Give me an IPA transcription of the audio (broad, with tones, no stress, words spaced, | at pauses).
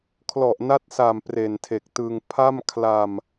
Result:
kʰlɔ˨˩ʔna˦˥t̚sa˨˩m pre˨˩ntʰe˨˩k̚tɯ˧ŋ pʰa˥˩mkʰla˧m